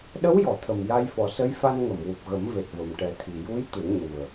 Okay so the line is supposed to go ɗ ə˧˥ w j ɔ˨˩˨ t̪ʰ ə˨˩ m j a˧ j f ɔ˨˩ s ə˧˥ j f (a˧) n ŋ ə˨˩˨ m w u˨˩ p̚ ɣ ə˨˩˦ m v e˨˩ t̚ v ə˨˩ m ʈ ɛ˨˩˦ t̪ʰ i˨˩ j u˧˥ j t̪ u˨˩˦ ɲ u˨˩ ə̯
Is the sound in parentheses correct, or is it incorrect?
correct